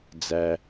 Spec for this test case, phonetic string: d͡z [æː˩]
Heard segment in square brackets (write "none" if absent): æ˩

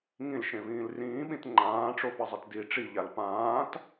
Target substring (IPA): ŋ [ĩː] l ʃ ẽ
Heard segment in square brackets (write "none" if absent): ĩ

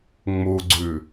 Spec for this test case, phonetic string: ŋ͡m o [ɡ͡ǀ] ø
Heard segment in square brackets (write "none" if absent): ɡ͡ǀ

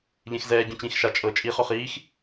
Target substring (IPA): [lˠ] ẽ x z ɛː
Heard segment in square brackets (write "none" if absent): ʎ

